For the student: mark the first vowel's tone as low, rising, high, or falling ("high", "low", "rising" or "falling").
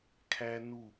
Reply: high